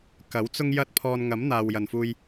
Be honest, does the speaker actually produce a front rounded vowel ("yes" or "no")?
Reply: no